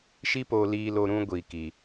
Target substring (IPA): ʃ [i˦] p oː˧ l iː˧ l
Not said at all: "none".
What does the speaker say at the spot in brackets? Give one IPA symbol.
i˦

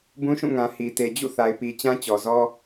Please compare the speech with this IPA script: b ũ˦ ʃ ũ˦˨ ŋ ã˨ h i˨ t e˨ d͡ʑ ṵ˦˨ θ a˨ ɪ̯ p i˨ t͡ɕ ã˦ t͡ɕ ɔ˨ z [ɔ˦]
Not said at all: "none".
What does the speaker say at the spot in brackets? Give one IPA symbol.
ɔ˦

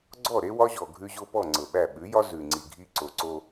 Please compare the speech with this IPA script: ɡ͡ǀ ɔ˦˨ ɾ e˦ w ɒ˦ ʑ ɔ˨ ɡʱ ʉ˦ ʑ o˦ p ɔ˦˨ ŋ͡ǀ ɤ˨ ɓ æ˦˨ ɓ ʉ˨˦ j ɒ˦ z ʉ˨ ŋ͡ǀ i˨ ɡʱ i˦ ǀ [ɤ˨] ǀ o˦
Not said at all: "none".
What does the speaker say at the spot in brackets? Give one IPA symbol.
o˨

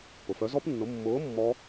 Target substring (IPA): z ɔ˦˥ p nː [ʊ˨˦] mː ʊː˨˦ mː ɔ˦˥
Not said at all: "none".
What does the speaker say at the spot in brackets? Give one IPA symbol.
ʊ˨˦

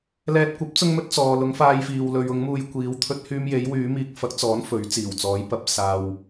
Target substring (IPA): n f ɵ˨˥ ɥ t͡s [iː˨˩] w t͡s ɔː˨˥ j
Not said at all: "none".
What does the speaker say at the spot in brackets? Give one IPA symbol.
iː˨˩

